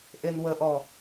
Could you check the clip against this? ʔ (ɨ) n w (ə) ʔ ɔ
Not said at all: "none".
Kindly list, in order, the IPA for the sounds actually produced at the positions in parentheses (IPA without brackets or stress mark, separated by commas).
e, ə